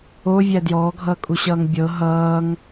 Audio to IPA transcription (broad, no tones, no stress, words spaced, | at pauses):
ovʲæ djɔːɡʱʌːkʼuɕʌːŋ bʲɤ ɦʌːŋ